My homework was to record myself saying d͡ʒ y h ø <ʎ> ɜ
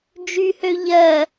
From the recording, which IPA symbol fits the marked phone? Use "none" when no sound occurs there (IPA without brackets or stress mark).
ʎ